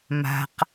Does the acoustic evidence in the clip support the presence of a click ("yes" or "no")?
no